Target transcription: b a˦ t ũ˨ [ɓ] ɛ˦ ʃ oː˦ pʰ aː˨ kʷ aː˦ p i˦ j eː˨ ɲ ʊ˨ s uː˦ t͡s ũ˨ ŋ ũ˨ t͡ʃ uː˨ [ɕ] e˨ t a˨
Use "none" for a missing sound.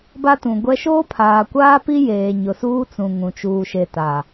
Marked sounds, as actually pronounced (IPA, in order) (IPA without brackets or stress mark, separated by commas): ɡʷ, ʃ